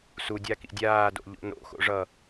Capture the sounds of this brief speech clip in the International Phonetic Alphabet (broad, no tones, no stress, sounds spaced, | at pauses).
s u dʲ a k ḭ dʲ aː d o̰ ʎ o̰ n o̰ x o̰ ʐ ʌ